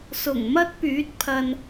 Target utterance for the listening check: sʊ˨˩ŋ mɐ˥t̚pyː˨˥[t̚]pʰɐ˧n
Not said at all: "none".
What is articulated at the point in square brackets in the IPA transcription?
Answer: t̚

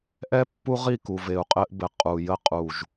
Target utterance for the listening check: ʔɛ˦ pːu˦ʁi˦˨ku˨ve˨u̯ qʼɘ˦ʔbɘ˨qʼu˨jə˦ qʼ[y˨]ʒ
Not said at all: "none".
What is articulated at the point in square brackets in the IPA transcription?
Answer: u˨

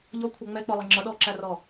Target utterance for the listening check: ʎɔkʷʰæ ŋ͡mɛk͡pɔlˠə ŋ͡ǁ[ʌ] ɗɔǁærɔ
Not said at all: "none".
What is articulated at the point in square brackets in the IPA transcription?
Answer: ʌ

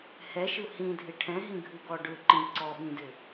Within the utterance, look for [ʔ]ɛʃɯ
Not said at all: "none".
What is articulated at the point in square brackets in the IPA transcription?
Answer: h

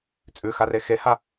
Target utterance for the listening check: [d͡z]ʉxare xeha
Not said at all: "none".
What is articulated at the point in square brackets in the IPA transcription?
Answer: t͡sʼ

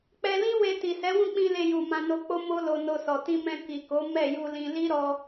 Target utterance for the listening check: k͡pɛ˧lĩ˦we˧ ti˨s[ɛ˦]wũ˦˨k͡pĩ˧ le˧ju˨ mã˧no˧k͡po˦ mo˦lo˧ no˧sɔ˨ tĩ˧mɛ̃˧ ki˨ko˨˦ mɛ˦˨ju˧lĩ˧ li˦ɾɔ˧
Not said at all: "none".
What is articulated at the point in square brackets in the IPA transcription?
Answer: ɛ˨˦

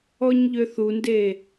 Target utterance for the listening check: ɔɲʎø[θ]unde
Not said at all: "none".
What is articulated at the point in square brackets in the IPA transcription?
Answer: θ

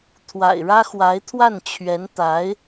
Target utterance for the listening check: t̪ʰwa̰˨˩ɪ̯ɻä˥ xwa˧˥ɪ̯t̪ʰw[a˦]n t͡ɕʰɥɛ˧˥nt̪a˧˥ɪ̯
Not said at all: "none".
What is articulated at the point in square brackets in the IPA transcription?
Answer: a˥˩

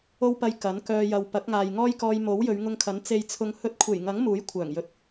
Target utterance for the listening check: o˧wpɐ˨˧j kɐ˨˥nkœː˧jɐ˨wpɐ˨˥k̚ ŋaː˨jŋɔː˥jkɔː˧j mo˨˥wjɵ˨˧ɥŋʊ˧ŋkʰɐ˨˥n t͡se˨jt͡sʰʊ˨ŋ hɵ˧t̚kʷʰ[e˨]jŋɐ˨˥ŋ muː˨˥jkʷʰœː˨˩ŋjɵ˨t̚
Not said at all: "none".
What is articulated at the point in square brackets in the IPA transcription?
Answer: e˨˩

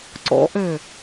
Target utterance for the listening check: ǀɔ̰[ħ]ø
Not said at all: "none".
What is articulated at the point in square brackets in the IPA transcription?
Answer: ʔ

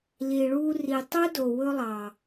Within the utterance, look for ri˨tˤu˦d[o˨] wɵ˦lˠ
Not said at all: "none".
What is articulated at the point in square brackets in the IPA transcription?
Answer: o˨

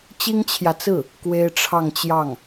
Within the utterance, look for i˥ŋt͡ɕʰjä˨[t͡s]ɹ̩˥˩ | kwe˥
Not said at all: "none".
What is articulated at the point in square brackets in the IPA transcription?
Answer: t͡s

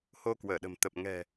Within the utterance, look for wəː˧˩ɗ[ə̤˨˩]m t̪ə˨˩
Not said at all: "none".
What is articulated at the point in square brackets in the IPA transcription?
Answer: ə̤˨˩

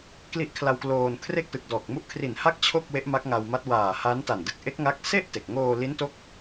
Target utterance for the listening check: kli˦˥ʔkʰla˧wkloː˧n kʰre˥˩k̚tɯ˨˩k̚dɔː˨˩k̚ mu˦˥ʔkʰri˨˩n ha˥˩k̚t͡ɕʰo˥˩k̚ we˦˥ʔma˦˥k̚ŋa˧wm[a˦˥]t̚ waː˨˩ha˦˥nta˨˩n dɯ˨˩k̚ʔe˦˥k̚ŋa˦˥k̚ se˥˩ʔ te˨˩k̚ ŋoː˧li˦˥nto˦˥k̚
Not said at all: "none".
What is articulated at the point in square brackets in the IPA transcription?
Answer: a˦˥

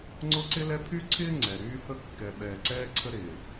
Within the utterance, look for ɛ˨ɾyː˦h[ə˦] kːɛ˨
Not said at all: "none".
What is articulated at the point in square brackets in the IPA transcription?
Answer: ə˦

